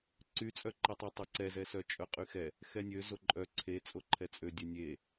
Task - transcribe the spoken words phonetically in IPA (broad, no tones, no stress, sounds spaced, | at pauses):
ǀ y t͡sʼ œ ǃ i tˤ ø tˤ o ǀ ɛ z ɛ s œ t͡ʃʼ œ qʼ y x ɛ | x ɛ nʲ ø z o ǃʼ œ ǀʰ e t͡sʼ o ǃʰ ɛ t͡sʼ ø dʲ ø nʲ e